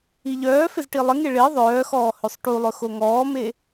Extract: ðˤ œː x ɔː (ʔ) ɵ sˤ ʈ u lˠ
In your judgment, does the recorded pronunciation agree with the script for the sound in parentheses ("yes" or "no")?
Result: no